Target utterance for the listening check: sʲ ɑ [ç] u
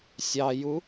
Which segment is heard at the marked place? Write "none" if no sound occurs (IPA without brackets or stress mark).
j